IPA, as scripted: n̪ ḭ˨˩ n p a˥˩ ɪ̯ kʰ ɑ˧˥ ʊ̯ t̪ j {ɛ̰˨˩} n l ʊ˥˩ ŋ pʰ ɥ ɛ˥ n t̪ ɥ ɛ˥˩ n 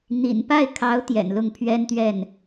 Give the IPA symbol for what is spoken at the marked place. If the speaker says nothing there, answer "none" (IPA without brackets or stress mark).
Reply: ɛ̰˨˩